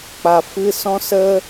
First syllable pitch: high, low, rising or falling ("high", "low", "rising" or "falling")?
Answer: low